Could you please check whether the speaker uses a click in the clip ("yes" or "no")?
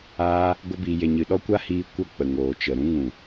no